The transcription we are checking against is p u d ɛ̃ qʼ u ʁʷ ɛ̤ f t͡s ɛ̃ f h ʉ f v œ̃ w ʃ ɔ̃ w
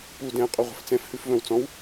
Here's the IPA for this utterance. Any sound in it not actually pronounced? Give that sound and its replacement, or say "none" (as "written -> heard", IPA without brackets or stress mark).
ʃ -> t͡s